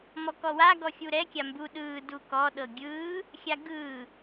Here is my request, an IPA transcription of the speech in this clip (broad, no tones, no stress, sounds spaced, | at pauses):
m ɔ k ɔ w a ɡ ɔ xʲ u ɾ ɛ kʲ a m b u ɗ ɯː d u k ɔ ɗ ɤ ɡʲ ɯː | xʲ a ɡ ɯː